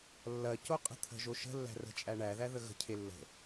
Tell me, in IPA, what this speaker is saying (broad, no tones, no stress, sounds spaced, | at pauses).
lː ɐ c o qʼ ə̤ t̪ʰ ə̤ ʒ o ʃ ə̤ lː æ̤ r ə̤ t͡ʃʼ æ ɳ æ ð æ ð ə ɣ ə̤ cʰ e lː ə̤